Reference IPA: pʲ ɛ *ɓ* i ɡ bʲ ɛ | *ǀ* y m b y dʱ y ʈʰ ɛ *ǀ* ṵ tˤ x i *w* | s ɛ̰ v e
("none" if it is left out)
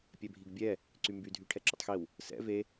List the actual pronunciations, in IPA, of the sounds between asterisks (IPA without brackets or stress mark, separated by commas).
bʱ, ǀ, ǁ, w